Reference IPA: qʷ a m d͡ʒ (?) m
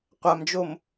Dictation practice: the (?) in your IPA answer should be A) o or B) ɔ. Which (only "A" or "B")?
A